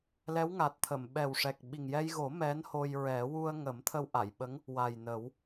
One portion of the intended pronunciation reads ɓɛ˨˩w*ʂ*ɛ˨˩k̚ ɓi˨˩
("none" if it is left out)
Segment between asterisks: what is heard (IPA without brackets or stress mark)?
ʂ